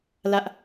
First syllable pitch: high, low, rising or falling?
high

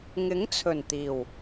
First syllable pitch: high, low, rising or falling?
rising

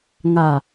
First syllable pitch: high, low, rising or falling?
low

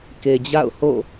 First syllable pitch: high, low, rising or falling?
low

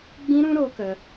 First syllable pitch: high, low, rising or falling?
high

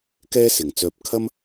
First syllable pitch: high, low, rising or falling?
high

